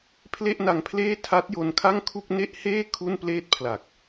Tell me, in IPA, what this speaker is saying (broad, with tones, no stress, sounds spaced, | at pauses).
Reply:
pʰ l e˥˩ ʔ n a˧ ŋ pʰ l eː˥˩ tʰ a˦˥ t̚ j o˧ n kʰ a˥˩ ŋ kʰ u˥˩ k̚ n e˥˩ ʔ h eː˥˩ kʰ u˥˩ n p l eː˥˩ t̚ pʰ l a˨˩ k̚